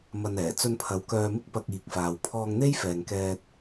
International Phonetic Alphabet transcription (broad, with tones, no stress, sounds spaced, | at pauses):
m ɐ˧ n ɛː˨˩ t͡s ɵ˧ n pʰ ɐ˨˧ w k œː˧ m ɪ˥ k̚ p ɐ˧ k̚ iː˨ k̚ f aː˨ w pʰ ɔː˧ ŋ n̪ e˥ j f ɛː˨ ŋ k ɛː˧ t̚